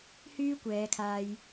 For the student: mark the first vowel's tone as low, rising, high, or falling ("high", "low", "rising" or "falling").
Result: high